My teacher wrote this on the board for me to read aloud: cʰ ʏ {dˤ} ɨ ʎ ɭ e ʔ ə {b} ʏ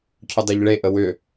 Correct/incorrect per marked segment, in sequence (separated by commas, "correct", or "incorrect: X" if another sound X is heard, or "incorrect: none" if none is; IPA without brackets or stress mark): correct, incorrect: w